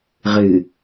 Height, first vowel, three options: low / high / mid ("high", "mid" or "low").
high